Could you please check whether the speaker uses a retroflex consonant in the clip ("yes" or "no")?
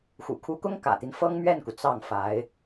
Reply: no